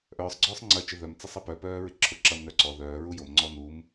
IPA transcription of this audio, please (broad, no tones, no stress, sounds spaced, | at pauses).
ʔ œː sˤ ɡ͡ǀ œː sˤ ŋ͡ǀ ɐ t͡ʃ ɪ ð œ m t͡s ɐ sˤ ɐ p œ p œː ɹ ɪ ǁʰ ʊ ǁ ɐ m n œ ǀ ɔ ð œː ɹ u j o m ŋ͡ǀ ɔ n u m